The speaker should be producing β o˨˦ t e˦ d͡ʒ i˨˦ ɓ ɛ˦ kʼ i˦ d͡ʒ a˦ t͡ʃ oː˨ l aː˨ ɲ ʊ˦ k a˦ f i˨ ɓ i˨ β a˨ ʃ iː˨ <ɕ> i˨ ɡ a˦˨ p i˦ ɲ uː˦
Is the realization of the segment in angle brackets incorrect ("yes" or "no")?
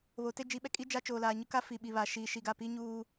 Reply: yes